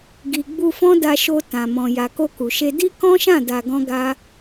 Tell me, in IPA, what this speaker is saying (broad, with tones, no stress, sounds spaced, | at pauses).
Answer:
ɡ i˨ ɡ͡b u˧ f ɔ̃˦ d a˧ ʃ o˧ t ã˨ m ɔ̃˨ j a˨ k o˧ k u˨ ʃ e˧ d i˦ k ɔ̃˦ ʃ ã˦˨ d a˧ ɡ ɔ̃˦ ɡ a˦